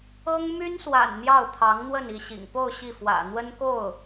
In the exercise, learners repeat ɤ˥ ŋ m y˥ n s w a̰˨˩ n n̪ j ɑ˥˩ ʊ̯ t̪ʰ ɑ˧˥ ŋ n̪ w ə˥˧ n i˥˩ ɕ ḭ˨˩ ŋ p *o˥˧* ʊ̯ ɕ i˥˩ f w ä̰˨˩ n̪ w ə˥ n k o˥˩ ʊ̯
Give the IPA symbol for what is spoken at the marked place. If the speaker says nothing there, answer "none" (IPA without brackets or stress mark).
o˥˧